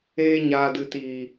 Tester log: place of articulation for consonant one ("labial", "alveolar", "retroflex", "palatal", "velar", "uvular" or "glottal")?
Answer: palatal